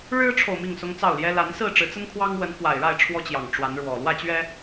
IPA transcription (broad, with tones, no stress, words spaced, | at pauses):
ɻɻ̩˦ʈ͡ʂʰo˨ʊ̯ mi˥˨ŋsʊ˦ŋt͡sɑ˥˨ʊ̯ljɛ˦ la˨˦n sɹ̩˥˨ʈ͡ʂɻ̩˨˦t͡sə˦nkʰwɑ˦ŋ wə˨˦nkwa˨˩ɪ̯ɻa˥˨ɪ̯ ʈ͡ʂʰwɔ˦t͡ɕjɑ˨˩ŋ ʈ͡ʂwa˨˦nɻwɔ˨˩ lwä˥˨t͡ɕɥɛ˦